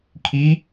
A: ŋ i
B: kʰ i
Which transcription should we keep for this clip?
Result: B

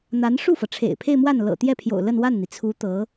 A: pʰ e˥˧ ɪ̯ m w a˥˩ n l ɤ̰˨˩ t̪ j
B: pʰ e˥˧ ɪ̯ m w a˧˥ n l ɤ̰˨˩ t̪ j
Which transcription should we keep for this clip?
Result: A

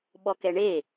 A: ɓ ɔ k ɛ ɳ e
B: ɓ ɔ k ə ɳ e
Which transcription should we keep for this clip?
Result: A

